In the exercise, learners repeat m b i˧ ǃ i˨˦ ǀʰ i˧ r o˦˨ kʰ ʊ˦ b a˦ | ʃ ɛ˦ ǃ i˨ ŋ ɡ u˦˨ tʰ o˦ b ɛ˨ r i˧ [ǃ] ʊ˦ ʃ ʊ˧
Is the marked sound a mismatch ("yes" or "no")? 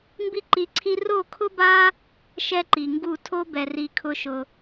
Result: yes